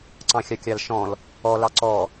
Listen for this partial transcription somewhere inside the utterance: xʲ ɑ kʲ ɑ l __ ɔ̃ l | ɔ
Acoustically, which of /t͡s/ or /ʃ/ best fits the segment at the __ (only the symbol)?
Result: ʃ